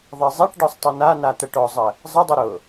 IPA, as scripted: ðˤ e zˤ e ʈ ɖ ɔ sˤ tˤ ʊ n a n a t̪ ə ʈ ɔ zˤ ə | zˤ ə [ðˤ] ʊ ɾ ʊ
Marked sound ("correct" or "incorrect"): incorrect